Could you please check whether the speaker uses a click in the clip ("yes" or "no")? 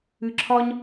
yes